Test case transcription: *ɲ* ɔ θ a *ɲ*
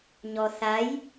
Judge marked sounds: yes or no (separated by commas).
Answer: yes, no